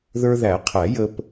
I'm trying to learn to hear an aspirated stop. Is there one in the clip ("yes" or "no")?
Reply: yes